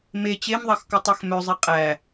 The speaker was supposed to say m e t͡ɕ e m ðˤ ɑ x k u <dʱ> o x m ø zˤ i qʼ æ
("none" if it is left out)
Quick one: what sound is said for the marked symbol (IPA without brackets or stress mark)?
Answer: tˤ